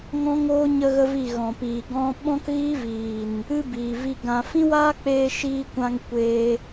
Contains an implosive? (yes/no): yes